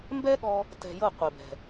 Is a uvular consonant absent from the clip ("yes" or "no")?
no